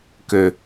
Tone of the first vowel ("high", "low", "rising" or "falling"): low